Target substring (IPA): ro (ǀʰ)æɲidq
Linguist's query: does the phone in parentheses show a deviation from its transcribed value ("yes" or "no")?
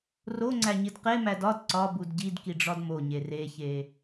yes